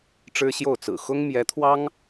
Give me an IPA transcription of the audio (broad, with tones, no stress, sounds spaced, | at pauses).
ʈ͡ʂ ɻ̩˥ ɕ j o˥˩ ʊ̯ t͡s ɹ̩˨˩ x ʊ˥ ŋ m j ɛ˧˥ t̪ʰ w ɑ˥ ŋ